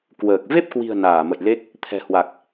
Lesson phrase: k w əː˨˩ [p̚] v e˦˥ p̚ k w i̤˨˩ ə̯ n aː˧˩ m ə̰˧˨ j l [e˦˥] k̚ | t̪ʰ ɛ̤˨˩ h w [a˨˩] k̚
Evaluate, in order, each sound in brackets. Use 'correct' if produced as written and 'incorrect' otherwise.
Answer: incorrect, correct, correct

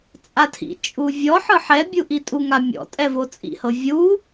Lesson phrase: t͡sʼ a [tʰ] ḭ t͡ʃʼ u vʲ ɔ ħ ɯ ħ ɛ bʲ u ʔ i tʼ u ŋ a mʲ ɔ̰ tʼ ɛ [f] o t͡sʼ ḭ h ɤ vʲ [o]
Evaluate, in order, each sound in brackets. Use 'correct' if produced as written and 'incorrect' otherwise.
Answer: correct, incorrect, incorrect

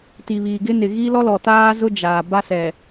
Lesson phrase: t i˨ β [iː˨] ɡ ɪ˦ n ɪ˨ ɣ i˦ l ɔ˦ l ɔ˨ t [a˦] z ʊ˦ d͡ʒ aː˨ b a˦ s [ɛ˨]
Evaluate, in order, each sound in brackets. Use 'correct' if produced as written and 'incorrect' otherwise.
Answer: correct, incorrect, correct

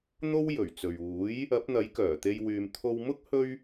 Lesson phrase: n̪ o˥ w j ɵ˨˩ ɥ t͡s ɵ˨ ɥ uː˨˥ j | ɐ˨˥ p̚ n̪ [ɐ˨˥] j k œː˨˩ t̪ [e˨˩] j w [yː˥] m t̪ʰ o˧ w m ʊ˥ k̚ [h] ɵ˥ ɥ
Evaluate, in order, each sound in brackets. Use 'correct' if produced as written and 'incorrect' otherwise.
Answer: correct, incorrect, incorrect, correct

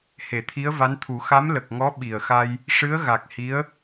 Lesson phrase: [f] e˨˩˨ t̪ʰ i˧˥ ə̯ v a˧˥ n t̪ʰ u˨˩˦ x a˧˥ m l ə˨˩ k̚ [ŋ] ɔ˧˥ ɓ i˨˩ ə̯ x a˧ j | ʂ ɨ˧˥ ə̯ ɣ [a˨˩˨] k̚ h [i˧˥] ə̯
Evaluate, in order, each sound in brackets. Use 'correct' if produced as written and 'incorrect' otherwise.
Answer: incorrect, correct, incorrect, correct

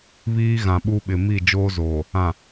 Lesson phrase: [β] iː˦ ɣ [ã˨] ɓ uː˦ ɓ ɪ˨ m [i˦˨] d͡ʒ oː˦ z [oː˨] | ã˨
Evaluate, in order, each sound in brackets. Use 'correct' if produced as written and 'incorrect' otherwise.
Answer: correct, correct, correct, correct

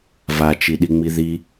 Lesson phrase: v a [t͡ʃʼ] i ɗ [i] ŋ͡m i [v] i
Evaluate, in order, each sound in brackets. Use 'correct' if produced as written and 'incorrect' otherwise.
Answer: incorrect, correct, incorrect

